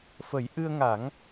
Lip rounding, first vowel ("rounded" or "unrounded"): unrounded